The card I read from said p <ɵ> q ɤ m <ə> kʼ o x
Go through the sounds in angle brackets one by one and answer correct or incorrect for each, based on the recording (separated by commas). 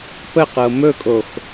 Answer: incorrect, incorrect